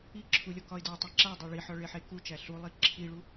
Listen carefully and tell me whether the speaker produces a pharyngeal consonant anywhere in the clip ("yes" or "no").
yes